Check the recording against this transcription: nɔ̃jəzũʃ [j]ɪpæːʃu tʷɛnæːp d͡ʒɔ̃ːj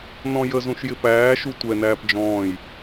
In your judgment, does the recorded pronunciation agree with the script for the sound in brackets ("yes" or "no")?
yes